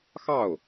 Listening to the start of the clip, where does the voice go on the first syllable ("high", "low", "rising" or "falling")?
falling